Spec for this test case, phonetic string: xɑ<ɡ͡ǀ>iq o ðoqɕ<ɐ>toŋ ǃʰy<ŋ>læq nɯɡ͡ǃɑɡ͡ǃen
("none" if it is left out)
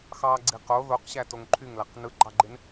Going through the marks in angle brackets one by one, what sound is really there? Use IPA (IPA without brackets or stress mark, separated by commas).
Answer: ɡ͡ǀ, æ, ŋ